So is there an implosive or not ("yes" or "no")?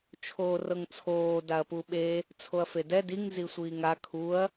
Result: yes